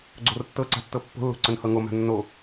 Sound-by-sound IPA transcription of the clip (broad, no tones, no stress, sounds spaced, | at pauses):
ɡ͡ǀ o r tː ɤ ǀ a̤ tː ɤ pː o̤ lː o̤ ǀ ə n h ɤ ŋ o m a̤ nː o